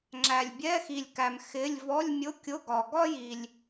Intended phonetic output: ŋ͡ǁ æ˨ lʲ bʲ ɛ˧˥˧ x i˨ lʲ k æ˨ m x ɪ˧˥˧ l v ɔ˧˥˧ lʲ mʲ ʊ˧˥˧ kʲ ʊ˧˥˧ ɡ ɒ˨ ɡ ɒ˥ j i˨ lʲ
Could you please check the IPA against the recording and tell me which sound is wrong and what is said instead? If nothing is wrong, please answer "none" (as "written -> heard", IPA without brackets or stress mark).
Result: l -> lʲ